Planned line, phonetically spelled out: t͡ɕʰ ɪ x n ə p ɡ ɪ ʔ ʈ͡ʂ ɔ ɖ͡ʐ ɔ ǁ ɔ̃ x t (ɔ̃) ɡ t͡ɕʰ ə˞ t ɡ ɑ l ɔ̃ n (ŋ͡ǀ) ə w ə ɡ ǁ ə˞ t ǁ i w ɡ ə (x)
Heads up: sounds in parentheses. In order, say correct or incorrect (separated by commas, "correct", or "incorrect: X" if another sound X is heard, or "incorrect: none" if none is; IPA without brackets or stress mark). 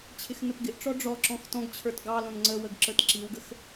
correct, correct, correct